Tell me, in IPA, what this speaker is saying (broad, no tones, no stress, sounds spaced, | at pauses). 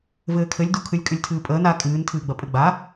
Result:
v ɘː kʰ ɘ lʲ d u kʰ ɨ lʲ kʼ ɨ lʲ tʰ ɨː pʼ əː n a kʼ ɨː n tʰ ɨː ɡ͡b ɐ pʼ ɘ ɡ͡b a